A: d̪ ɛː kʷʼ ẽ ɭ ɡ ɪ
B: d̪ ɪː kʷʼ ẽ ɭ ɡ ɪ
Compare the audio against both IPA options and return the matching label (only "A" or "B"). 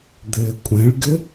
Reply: B